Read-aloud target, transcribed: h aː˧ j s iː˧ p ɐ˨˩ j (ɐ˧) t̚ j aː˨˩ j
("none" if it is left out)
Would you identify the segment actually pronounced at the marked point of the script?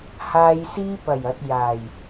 ɐ˨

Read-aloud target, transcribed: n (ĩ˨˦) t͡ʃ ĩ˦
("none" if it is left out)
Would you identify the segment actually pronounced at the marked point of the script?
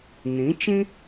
ĩ˨˦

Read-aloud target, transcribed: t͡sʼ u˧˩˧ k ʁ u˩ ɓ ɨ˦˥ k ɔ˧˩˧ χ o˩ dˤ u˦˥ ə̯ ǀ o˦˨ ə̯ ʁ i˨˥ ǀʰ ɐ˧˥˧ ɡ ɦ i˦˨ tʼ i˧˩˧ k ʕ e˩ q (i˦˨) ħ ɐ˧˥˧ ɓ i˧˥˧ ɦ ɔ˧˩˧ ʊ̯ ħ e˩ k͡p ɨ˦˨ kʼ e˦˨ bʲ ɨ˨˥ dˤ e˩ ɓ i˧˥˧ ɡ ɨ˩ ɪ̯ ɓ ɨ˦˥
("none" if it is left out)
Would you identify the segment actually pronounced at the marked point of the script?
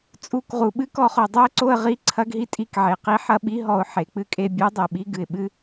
i˨˥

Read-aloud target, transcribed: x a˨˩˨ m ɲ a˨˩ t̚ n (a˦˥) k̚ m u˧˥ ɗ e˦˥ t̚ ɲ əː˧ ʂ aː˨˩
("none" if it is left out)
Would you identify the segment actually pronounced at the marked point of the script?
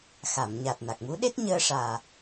a˨˩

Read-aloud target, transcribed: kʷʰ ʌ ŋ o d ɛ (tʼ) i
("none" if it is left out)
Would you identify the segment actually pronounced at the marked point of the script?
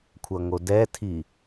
tʰ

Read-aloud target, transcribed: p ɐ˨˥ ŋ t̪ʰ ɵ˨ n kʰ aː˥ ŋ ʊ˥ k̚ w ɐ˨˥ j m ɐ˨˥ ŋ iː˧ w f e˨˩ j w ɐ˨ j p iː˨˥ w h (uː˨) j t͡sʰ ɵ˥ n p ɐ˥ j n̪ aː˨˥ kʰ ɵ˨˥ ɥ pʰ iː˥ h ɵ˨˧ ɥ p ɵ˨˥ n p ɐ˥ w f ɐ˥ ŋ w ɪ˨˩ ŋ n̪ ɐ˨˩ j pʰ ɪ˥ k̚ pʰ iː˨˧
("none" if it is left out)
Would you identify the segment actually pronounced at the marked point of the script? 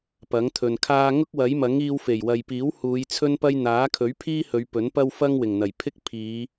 uː˨˧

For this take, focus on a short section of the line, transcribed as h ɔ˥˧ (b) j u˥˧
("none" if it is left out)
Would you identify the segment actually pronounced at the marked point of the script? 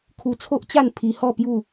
p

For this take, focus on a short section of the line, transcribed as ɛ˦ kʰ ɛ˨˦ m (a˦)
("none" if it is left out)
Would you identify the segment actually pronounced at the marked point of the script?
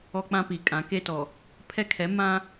ã˦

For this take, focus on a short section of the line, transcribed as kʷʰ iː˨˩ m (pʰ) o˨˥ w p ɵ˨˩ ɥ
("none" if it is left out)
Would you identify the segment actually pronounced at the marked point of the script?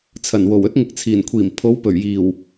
pʰ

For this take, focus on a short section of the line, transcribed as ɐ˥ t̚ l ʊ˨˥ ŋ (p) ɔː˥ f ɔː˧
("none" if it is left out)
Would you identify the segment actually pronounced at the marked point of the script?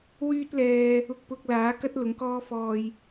k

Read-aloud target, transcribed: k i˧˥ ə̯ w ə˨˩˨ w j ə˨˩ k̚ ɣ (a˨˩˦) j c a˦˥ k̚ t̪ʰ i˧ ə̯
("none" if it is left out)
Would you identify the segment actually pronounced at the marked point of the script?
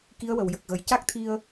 ə˨˩˦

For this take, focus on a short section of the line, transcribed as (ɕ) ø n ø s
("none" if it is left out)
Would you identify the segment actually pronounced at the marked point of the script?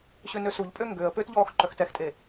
ɕ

